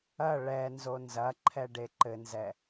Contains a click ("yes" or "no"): yes